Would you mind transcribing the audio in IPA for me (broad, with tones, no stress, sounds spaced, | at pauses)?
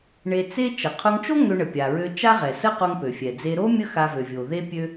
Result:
ɳ e˧ t͡s e˥ t͡ʃ ə˩ qʰ o˧ ŋ t͡ʃ o˥ ŋ ø˧ ɳ ə˩ pʲ a˩ ɹ ø˧ t͡ʃ a˥ ʁ ɛ˩ s ə˥ q o˧ ŋ p ø˩ fʲ ɛ˩ d͡z e˧ ɾ o˥ mʲ ə˥ x a˧ v ø˩ vʲ o˩ ð e˥ pʲ ø˥